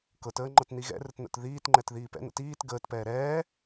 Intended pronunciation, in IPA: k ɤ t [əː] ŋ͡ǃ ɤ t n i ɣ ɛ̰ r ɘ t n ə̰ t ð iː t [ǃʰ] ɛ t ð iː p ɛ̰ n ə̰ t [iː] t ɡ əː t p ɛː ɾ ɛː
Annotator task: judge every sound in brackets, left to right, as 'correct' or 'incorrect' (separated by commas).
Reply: correct, incorrect, correct